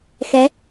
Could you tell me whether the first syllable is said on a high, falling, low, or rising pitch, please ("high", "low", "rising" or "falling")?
rising